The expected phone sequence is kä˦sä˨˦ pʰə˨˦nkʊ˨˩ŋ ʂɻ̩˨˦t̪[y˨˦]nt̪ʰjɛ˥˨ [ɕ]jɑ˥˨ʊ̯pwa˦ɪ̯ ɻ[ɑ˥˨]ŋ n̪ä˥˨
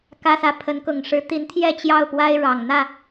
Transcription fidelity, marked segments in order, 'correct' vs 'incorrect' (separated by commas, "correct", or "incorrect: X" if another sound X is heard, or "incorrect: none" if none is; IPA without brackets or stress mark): incorrect: i˨˦, incorrect: t͡ɕ, incorrect: ɑ˨˩